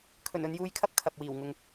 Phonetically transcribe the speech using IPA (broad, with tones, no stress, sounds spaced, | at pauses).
kʰ ɵ˨˩ n ɵ˨˧ n j uː˧ j kʰ ɐ˥ p̚ kʰ ɐ˨ p̚ w iː˨˩ w ŋ ʊ˨ ŋ